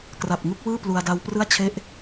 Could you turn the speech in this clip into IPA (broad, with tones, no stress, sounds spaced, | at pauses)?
k r a˨˩ p̚ ŋ u˥˩ k̚ w ɯː˥˩ p l u˧ a̯ d a˦˥ w p r ɯ˥˩ a̯ t͡ɕʰ e˥˩ ʔ